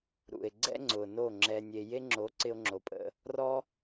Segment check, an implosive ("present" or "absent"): absent